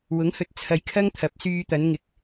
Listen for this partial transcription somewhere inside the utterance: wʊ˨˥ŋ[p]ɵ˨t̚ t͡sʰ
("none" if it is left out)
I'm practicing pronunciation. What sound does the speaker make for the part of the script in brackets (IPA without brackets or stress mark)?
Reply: h